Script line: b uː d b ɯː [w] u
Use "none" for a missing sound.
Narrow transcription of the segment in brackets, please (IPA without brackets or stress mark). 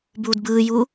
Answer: j